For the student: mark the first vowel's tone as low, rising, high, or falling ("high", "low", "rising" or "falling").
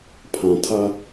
low